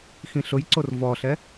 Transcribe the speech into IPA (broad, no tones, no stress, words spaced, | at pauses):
xĩɬʊjǀor vɔɬɛ